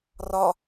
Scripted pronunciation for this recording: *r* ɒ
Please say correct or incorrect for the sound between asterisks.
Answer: correct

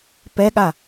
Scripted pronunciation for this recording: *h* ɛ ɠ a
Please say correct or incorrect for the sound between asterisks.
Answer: incorrect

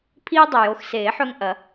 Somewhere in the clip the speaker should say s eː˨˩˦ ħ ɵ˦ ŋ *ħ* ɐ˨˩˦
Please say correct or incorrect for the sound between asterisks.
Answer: incorrect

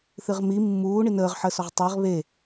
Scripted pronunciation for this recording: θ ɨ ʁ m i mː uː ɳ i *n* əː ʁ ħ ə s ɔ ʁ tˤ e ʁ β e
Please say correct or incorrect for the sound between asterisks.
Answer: correct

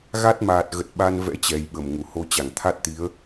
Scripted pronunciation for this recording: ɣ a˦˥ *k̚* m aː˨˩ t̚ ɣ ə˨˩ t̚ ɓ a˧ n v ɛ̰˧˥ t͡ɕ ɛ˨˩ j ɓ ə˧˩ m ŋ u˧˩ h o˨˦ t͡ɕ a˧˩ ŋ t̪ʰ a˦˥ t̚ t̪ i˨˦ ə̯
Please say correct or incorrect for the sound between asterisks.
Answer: incorrect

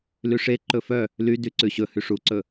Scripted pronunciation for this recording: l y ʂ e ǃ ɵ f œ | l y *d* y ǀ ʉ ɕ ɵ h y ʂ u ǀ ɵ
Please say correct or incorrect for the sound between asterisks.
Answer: correct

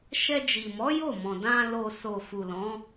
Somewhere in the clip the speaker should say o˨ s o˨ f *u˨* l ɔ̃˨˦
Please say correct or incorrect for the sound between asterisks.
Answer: correct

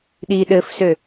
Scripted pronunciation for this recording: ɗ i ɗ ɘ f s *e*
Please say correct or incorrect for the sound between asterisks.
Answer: incorrect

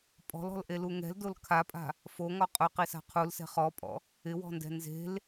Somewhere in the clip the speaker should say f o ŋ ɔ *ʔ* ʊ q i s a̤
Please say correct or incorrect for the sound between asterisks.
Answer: incorrect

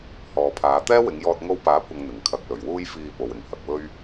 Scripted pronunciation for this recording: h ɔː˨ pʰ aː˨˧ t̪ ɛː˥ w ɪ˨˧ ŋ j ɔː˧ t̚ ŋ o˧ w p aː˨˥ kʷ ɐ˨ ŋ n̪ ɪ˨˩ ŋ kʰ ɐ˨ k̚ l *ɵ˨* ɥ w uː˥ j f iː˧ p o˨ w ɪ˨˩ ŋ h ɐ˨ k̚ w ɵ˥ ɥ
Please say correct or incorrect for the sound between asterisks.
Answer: incorrect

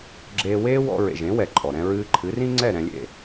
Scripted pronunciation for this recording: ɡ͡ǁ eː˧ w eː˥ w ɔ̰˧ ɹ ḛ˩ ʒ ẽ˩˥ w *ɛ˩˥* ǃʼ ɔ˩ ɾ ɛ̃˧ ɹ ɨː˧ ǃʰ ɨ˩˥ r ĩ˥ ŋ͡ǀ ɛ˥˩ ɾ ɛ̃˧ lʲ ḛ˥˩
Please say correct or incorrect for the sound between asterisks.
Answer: incorrect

